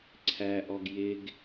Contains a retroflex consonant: no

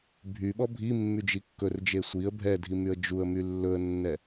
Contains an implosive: yes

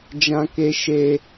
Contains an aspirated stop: no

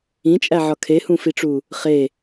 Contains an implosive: no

